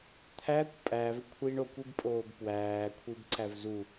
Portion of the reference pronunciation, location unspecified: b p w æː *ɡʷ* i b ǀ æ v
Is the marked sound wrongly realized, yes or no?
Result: yes